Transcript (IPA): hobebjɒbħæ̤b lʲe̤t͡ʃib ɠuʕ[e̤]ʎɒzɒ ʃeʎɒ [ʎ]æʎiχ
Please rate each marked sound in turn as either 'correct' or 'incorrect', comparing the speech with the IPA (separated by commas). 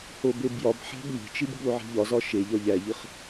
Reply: correct, correct